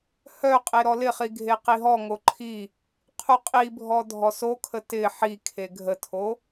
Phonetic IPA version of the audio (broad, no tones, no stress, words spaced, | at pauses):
hœ qʼeɾɔlɪχi ɡʱeqiɦɔŋo ǃʰi | qʰuqʼibʱɔ dʱɔsokʰə tɪ ħi kʰeɡʱətʰo